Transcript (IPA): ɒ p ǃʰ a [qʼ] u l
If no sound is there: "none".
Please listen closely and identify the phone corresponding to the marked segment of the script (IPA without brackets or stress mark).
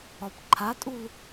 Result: tʼ